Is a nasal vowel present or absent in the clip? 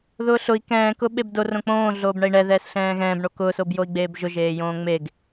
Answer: present